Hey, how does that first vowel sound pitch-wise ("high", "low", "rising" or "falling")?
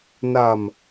low